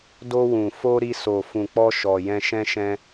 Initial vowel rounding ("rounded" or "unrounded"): rounded